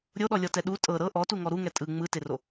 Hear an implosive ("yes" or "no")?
yes